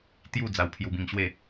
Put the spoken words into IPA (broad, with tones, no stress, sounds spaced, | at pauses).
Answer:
t̪ j u˥˧ d͡z a˧ w pʰ j u˧ b ĩ˧ ŋ ɕ w e˥˧